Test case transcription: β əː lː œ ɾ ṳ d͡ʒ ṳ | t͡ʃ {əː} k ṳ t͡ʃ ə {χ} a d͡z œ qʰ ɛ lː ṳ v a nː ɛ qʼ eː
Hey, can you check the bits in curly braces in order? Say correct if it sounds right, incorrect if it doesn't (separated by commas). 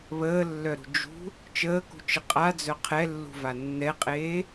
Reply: correct, incorrect